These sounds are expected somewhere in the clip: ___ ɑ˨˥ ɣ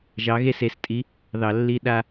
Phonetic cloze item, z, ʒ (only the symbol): ʒ